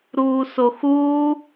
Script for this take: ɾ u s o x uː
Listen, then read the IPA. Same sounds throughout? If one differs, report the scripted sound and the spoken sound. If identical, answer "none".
u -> uː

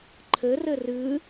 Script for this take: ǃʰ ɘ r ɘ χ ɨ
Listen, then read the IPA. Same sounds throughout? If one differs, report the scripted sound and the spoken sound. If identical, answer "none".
χ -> r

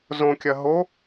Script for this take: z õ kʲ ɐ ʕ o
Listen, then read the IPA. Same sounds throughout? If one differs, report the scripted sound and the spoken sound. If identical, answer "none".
ʕ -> ɦ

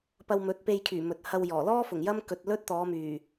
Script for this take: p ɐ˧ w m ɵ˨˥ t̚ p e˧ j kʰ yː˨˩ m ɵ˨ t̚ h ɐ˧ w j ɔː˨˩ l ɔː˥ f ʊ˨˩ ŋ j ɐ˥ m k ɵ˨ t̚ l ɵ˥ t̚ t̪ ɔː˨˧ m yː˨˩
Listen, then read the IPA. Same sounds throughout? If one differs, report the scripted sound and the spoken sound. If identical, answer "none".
none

